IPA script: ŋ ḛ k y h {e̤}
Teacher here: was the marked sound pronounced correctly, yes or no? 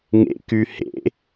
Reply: no